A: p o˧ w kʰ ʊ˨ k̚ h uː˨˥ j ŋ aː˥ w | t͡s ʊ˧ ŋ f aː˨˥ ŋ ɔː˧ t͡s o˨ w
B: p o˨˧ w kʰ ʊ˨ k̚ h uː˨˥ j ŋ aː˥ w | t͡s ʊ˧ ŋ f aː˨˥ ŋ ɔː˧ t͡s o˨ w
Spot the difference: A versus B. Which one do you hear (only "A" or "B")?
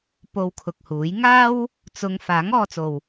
A